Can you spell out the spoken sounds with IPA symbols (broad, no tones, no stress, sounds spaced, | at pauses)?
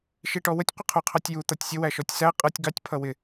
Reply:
ʃ i ʈ ɔ w ə tʲ qʷ ə qʰ u qʰ ɑ tʲ j u t̪ ʌ tʲ sʲ ə w æ ʃ ɔ tʲ s æ qʼ ʌ tʲ ɡ ɑ tʲ pʰ ʌ w ɪ